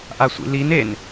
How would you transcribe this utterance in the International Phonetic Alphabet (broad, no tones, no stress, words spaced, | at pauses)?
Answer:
ʔasʷḭlin en